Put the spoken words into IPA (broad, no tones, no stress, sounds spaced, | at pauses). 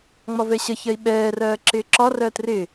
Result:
ŋ͡m ɒ v ɛ ɕ ʌ ç ɜ i̯ ɓ ɛː r ɜː ǁ ɪː ǁ ɒ r ɜː t r ɪ